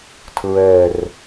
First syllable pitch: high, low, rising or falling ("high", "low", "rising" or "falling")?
falling